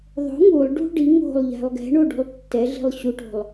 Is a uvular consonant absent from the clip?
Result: yes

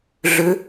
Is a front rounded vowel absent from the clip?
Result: no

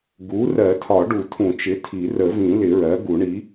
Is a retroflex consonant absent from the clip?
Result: no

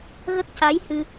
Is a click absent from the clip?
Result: yes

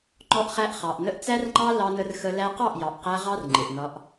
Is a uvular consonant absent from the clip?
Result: no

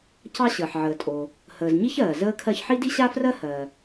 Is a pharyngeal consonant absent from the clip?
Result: no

